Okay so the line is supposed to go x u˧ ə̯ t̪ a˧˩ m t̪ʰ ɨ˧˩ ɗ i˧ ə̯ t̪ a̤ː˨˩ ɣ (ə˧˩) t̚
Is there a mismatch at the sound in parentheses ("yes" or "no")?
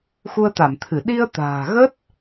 yes